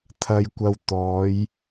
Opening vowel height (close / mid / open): open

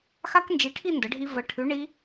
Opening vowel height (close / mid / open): open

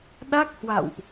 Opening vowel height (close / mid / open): open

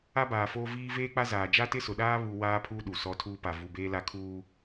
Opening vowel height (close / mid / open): open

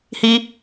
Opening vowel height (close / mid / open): close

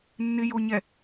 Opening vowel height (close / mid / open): close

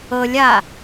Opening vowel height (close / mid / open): mid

